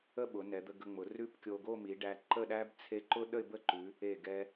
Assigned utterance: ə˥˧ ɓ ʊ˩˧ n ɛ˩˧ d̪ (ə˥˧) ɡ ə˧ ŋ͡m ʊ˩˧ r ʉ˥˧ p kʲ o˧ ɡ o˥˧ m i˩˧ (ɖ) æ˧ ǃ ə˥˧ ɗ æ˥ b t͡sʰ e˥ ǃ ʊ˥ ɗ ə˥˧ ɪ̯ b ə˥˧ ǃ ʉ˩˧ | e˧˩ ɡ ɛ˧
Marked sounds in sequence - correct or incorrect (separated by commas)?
incorrect, correct